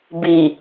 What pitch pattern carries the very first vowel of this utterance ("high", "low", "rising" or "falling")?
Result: low